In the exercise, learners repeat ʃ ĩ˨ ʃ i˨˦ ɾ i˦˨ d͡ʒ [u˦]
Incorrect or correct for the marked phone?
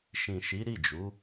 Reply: incorrect: u˨˦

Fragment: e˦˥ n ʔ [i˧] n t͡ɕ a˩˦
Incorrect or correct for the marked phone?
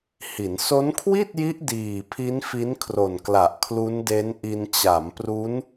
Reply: correct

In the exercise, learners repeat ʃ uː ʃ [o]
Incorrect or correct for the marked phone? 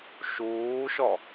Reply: incorrect: ɔ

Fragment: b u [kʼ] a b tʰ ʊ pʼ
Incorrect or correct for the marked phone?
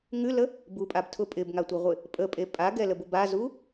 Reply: incorrect: pʼ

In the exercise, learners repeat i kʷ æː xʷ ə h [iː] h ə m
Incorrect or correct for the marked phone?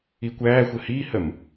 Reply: correct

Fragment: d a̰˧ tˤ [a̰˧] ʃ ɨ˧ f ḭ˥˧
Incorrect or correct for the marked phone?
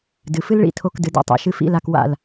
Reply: correct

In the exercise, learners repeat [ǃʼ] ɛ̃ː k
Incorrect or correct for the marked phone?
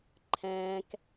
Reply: incorrect: ǃʰ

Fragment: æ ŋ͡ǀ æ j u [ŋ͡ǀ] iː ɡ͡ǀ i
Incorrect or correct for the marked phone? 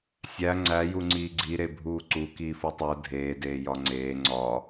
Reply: correct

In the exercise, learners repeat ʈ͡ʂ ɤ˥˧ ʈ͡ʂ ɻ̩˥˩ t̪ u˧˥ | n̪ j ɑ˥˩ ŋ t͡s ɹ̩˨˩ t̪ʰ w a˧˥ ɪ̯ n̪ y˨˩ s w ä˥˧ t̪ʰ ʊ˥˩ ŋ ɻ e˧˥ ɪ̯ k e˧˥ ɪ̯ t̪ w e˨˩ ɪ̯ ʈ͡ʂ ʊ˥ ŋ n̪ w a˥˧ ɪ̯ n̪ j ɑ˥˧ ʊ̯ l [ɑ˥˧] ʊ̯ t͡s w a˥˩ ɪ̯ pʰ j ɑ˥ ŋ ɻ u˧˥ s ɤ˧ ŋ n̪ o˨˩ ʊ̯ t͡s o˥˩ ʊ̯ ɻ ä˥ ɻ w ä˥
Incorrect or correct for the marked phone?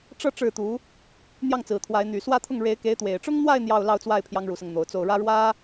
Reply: correct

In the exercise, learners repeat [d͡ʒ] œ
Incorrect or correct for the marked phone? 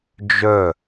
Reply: correct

